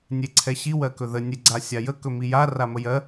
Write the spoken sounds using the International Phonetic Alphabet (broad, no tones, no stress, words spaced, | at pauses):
nʲeǀʰɛɕi wɜkɵðə nʲeɡ͡ǀasʲajə kɵmija raməjɜ